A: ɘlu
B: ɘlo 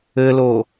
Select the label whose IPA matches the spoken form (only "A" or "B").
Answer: B